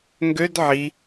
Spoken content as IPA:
ŋ ɡ ø d ʕ i

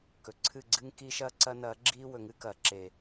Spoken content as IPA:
k ɵ˨ ǀʰ ɨ˦˨ ɡ͡ǀ ɨ˦ ŋ k iː˦ ʃ ɐː˦ ǀ ɐ˦ n ɐː˨˦ ɡ͡ǁ iː˦ w ɵ˨ ŋ ɨ˦ k ɐː˨ ǁ e˨

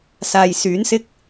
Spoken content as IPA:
s aː˨ j s yː˨˥ n s ɪ˥ k̚

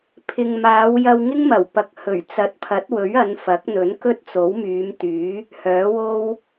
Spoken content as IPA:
pʰ ɪ˨ ŋ m aː˨˧ w j ɐ˧ w ŋ ɪ˥ ŋ m ɐ˨˩ w p ɐ˨ k̚ h ɵ˨˩ ɥ t͡s ɐ˨˥ t̚ pʰ ɐ˨˥ t̚ w ɵ˨˥ ɥ ɐ˨˧ n f ɐ˨˥ k̚ n̪ ɵ˨˥ n k ɵ˥ t̚ t͡s o˨˥ w m yː˨˧ m t̪ yː˨˥ | h œː˨˥ w o˥ w

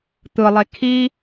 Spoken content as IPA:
t̪ ɯ lˠ e kʰ i

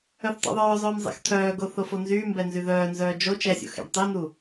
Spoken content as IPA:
œ θ tˤ ɛ̰ ðˤ œː zˤ œː m zˤ ɛ̰ x t̪ʰ œː ɡ o θ o f o n z yː m b ɛ n z y ð œː n z œː d͡ʒ o t͡ʃ ɛ sʲ o̰ x ɛ̰ ɖ tˤ ɛ n u

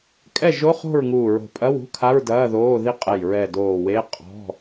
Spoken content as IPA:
kʼ ɛ˥˩ ʒ o˧˥˧ χ o̤˥˩ ɹ ŋ uː˧˩ ɹ o̤˧˩ pʼ ɐ˧˥˧ w ṳ˧˥˧ kʰ a˧˥˧ ɹ d ɐː˧˥˧ ð oː˧˥˧ ð i˥˩ qʼ ɛ˧˩ j ɹ ɛ˧˩ d oː˧˩ w e˧˥˧ qʼ ɔ̤˧˥˧

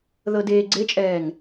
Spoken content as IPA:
ð ɤ d eː ɡ͡ǀ e t͡ʃʼ ɛː ŋ

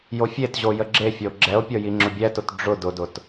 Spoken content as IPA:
j o fʲ e t ʑ o j ə ɡ͡ǁ e fʲ ɔ o̯ ɡ͡ǁ ɛ o̯ pʲ ɔ j i ŋ͡ǁ ʊ bʲ ɛ t ʊ t ɖ͡ʐ ʊ d ʊ d ʊ t

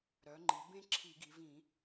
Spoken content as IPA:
ɾ œ˩˧ ŋ͡ǃ i˩˧ b ẽ˦ ǁʰ i˧˩˧ ɡ i˩˧ v ĩ˧˩˧

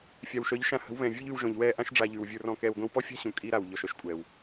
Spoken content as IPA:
fʲ a˨ w ʃ œ˨˦ ʎ ʃ ã˧ h ə̤˨˦ w β ɛ̃˨ vʲ u˦ ʎ ʉ˧ w ʒ ɔ̃˨ ʎ w ɛː˧ ʔ ã˧ ʃ ɖ͡ʐ a˨ ʎ ʉ˨ w vʲ ə˞˧ r ɔ̃˧ k ɛː˨ w ɡʷ ĩ˧ w p ɔ˦ fʲ a̤˦ ɕ ũ˨ kʼ i˧ ɾ a˨ w ʎ ɔ˨ ʃ œ˦ ʃ kʷʼ ɛː˨ w

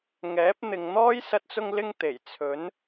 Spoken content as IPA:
ŋ ɛː˨˥ p̚ n̪ ɪ˨ ŋ n̪ ɔː˥ j s ɐ˧ t̚ t͡s ʊ˧ ŋ l ɪ˧ ŋ t̪ e˨˩ j t͡sʰ ɵ˨˥ n

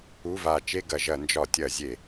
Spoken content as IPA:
u˧˥˧ v a˧˩ t͡ʃ e˥˧ ɡ ɐ˧˩˧ ʒ ɐ˧˩˧ n d͡ʒ ɒ˧˩˧ tʲ ɐ˧˩˧ zʲ e˧˩˧

